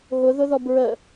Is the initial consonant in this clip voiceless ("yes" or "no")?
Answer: no